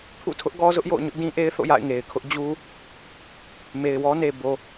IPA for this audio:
pʰṵ˦˨tʰʊ˦ʔ ɡɔ˦zʊ˦ʔjo̰˦˨ʊ̯ ɲʊ˦ʔdĩ˦ʔe˦ɪ̯ θo̰˦˨ja̰˦˨ɪ̯ŋe˨ɪ̯kʰʊ˦ʔ d͡ʑu˦ | me˨ɪ̯wɔ˦ne˨ bo˨

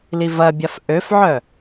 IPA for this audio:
livɐbʲaf ʔøfʕœ

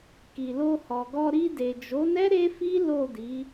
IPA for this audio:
ki˨lo˧hɔ˨ɡɔ˧ ɾi˧ de˨d͡ʒo˨˦nɛ˦ ɾe˦fi˦ lo˦˨di˨˦

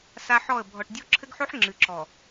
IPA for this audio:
sa˦ħɔ˦˨ə̯ bʱɔ˨ʈdʲɔ˦ǁʰɘ˦ɡħo˦ħ ŋ͡ǁɨ˨ǁɔ˨

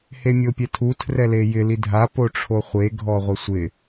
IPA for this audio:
hemʲopʲɛtʰu tʰrɛlejɪ lidʱa poʈ͡ʂʰoχʷe ɡʱɔʁʷɪsʷɪ

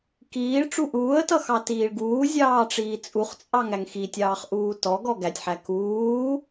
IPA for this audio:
kiːɭ ʈ͡ʂuʔuːə̯tʌ xɑtiːɭɡuː zʲɑːʈ͡ʂiːt͡sʼuχt͡sʼɑŋ æŋxitʲɑːχ ʔuːtɔɡɔ ɡætʲħæ kuː

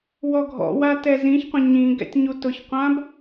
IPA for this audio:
wɔɡʱɔ̰wa tɛzĩçqʷə̃ ɲĩ ɡɛ̰tʲɲutʊçqʷãb

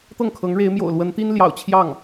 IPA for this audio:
t̪ɤ˥˩ŋkʰɤ˧˥ŋɻe˧˥ɪ̯mjo̰˨˩ʊ̯ lwə˧˥nt̪i˥n ljɑ̰˨˩ʊ̯ t͡ɕʰjɑ˥˩ŋ

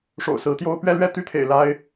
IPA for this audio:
ʂo̰˨˩ʊ̯sɹ̩˧˥t̪jo˥ʊ̯ pɥɛ˥˧lɥɛ˥˩t̪y˥t̪ʰḛ˨˩ɪ̯ la˥ɪ̯

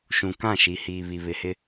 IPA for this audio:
ʃũ˨kã˦˨ʃi˨ hiː˨βi˨βɪ˨hɪ˦

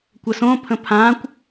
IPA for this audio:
kʷəsõ pʰə̃pʰãkʷ

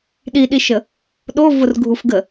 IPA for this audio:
ɗiɗiʃə | ɗo vʊrɡʱufɡə

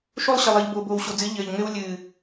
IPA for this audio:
ʃo˦lˠɕɘ˨lˠɨː˨ʎ bo˨ boː˨wɕo˨d͡zɨ˨˦ ʎɘː˨ʎŋɘ˦w lʲɨː˨

